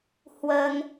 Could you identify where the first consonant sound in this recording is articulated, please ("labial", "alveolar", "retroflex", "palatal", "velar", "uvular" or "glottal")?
glottal